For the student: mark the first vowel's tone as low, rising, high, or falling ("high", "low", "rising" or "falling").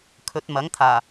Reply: rising